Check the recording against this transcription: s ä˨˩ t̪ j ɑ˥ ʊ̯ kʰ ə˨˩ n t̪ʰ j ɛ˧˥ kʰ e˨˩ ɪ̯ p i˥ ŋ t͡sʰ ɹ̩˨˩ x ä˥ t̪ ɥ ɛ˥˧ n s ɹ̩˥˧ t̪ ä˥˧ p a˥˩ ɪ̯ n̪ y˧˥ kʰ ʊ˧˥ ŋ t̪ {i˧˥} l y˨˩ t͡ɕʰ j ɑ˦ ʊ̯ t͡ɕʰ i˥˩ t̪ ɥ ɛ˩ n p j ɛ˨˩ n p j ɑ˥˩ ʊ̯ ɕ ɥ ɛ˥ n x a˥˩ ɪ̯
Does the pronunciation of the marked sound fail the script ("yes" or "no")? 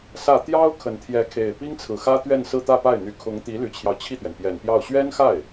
no